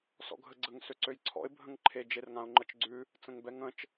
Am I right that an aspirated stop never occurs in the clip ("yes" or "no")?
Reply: no